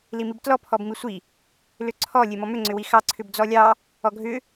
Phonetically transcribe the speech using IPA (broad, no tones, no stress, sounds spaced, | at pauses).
l i m i b t l ɔ pʰ ɔ b m i sʷ i | l ʏ ǀʰ ɔ lʲ e m ɔ m ʏ ŋ͡ǀ ʏ w i x ɑ ǀʰ ʏ b d͡z ɔ lʲ ɑ | ɔ ɡʱ ʏ